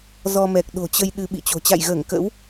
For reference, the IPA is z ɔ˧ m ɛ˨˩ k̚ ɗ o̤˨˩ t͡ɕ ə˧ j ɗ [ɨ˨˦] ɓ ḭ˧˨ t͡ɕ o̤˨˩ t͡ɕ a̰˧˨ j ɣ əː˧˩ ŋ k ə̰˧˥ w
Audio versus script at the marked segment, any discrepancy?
yes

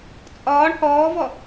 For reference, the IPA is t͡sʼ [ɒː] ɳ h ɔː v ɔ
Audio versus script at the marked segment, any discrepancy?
no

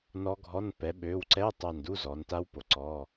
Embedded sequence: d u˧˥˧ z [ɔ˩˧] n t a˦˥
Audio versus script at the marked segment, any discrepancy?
no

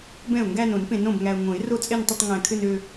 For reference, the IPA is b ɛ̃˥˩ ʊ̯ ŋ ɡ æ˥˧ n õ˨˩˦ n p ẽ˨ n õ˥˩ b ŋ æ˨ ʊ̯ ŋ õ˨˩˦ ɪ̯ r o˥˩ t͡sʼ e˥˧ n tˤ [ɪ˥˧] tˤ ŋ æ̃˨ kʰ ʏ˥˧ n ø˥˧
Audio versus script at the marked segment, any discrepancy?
no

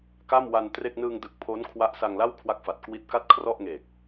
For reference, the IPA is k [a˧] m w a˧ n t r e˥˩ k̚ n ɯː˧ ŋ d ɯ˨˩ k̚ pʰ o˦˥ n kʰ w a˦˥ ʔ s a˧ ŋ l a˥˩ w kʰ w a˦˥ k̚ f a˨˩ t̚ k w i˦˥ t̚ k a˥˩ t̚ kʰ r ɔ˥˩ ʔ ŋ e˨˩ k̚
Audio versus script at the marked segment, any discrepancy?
yes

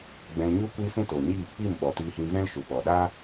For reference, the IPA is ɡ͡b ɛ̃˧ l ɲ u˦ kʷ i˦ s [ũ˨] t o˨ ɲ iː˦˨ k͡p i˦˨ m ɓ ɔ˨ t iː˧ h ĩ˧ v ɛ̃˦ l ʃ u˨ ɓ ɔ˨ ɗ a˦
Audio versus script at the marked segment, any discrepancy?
yes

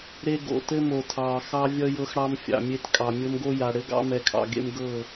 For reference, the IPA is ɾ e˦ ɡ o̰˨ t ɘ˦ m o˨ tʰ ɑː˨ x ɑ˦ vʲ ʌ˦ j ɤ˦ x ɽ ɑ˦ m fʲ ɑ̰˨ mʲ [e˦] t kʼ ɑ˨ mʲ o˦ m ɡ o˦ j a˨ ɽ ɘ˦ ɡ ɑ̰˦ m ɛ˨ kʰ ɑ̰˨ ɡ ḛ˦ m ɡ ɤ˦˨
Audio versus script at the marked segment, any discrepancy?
no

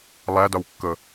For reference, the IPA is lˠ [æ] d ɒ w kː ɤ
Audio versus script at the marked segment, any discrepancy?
no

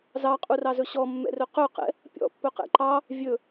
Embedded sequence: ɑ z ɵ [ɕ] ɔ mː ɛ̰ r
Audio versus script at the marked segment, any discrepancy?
no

